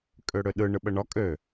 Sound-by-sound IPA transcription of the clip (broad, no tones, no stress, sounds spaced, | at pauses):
kʼ ø ɽ ø ɗ ɯ ɳ ɯ ɓ ə ɳ ɒ kʼ ø